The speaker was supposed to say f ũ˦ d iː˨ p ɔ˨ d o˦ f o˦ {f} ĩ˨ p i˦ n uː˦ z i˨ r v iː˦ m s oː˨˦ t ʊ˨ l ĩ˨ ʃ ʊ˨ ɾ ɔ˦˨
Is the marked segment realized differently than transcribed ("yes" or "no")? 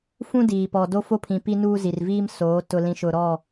yes